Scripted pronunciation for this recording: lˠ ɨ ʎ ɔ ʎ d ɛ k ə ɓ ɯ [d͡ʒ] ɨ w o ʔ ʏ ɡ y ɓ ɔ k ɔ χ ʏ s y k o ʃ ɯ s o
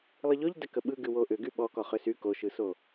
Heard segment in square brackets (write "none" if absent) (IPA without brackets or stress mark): ɡ